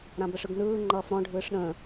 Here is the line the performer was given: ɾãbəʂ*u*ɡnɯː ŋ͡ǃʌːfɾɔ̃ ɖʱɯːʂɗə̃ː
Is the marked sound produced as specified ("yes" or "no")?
no